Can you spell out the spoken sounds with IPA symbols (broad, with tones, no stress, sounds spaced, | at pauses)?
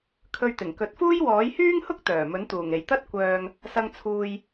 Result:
kʰ ɵ˧ ɥ t̪ ɪ˨˩ ŋ k ɵ˨˥ t̚ f uː˥ j w ɔː˨˥ j h yː˥ ŋ h ʊ˥ k̚ t̪ œː˨˩ m ɵ˨˥ n t̪ uː˨˩ ŋ e˨˩ j t̪ ɐ˥ t̚ kʷ œː˨ ŋ | s ɐ˧ ŋ t͡sʰ uː˨ j